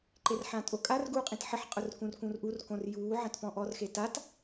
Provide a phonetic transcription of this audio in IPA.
ǃ e r ħ ãː tʼ o kʼ a r ɡ uː qʼ ĩ t ħ ɪ ħ qʼ ʊ r k ũ r k ũ r ʔ u r k õ r j uː ʕ ã t p ɔ̃ ʔ ɔ r x e t a t

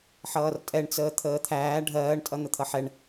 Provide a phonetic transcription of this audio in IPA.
ħ ʌː r tʼ ɛ ɳ t͡s əː t̪ʰ əː t̪ʰ æː ɖʱ ɜː ɳ tʼ ʌ n̪ ə t̪ʰ ʌ ħ ɛ ɳ

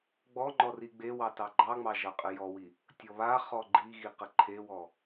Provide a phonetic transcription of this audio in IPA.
ɡ͡b ɔ ŋ͡ǃ ɔ r i ɡ͡b e w ɑ t ɑ ɡ͡ǃ ɑ ŋ͡m ɑ ʒ ɑ qʼ ə j ɔ w i | tʲ ɔ β a χ ɔ ɡ͡ǃ i ɣ i q ə ǃʰ e w ɔ

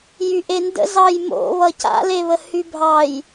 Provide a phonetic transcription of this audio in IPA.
j y ʔ e n d ə̰ z ɑ j m o̰ β ʌ c a̰ l e β ə h y bʱ ɑ j

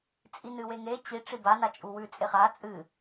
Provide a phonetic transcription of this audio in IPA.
t͡sʼ i n ɨ w e ŋ e t͡ɕ i ʈ͡ʂ i b a n a t͡ʃʼ u w ʉ t͡sʼ e χ a t͡sʼ ɨ

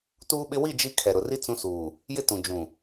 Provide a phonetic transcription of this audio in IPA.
t uː˦ ɓ ɪ˦ w i˦˨ d͡ʒ i˦ kʰ ɛ˨ ɾ ʊ˨ r i˦ t͡s ũ˦ s uː˨ | j ɪ˦ t ũ˨ d͡ʒ ũ˨

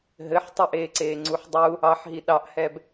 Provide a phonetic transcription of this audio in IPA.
ɦ ɘ ħ tˤ ə ʔ eː ǀ eː ŋ͡ǀ u ħ dˤ u | ɑ ħ ɦ i ɗ ɑ ʔ h ɛ b

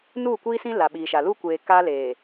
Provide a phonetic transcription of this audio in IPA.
n uː˦˨ kʷ iː˦ s ĩ˦ l a˨ ɓ iː˨ ʃ a˨ l u˦ kʷ eː˨ k a˦ l eː˨

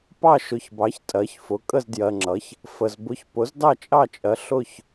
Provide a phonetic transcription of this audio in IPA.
p ɑ˥˨ ʃ ʊ˩˥ ç b ɑ˩˥ ç tʼ ɜ˩˥ ç f ʊ˩˥ kʼ ə˥˨ z d j ɜ˨ ŋ͡ǁ ʌ˩˥ ç | f ə˨ z b ʊ˧˥ ç p ʊ˩˥ z d ɑ˥˨ t͡ʃʼ ɑ˥˨ t͡ʃʼ ɜ˩˥ ɬ ʊ˥˨ ç

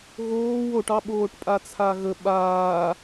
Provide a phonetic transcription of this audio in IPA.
ɣ oː w o ʈ ɑ ɓ oː ʈ pʼ a t͡sʰ a ɣ ə ɓ aː

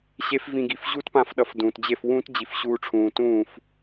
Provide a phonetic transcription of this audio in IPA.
ɕ e˦ f v ĩ˧ ɡ i˨ f ʑ u˦ t p ã˧ f ɗ ʌ˨ f d ũː˨ t d͡ʑ e˦˨ f w ũː˦ t d͡ʑ i˨ f ɕ uː˧ ʈ͡ʂʰ ũː˨ t ũː˦˨ f

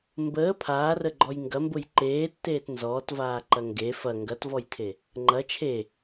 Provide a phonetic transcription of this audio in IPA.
m b əː pʰ aː r ə ɡ͡ǃ ɔ j ŋ ɡ ɐ m b ʊ j ǃ eː tː eː t n z ɔː t v aː ǃ ɐ ŋ ɡ e f ɐ ŋ ɡ ɐ t v ɔ j tʰ e | ŋ͡ǃ ɐ t͡ʃʰ e

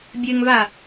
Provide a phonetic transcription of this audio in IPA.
bʲ ɘ ŋ v a

